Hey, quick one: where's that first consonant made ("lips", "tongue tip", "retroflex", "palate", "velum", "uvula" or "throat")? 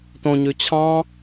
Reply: tongue tip